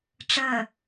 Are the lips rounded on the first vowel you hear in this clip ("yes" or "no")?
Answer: no